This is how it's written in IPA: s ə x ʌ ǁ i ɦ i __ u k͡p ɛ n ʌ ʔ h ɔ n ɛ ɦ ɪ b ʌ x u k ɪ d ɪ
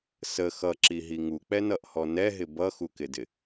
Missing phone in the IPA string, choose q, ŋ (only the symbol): ŋ